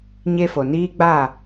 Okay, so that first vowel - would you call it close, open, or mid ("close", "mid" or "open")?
mid